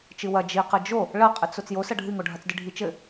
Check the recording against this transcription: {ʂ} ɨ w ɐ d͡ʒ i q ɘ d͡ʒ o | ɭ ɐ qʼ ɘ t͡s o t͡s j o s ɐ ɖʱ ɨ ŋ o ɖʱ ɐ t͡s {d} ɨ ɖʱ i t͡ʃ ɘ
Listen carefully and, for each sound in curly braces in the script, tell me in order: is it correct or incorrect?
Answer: incorrect: t͡ʃ, correct

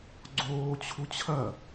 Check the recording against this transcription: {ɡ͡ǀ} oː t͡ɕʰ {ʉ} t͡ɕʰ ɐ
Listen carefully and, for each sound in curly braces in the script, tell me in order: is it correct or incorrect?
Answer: correct, incorrect: u

